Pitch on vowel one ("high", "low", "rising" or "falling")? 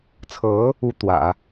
rising